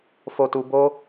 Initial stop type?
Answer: plain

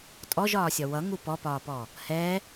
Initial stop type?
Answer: ejective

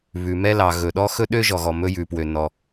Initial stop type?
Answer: implosive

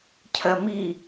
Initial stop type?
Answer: aspirated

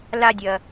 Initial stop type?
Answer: plain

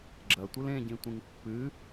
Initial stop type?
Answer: click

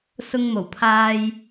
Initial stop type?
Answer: aspirated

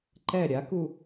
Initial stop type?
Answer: click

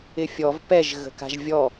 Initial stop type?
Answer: plain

